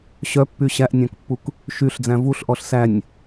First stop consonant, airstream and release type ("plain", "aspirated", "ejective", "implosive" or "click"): plain